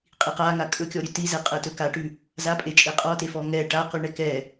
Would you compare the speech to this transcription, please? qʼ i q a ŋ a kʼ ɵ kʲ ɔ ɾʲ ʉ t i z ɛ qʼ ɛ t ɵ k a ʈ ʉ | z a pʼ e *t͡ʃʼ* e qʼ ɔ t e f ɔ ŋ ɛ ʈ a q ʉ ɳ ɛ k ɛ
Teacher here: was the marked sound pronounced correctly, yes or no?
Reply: yes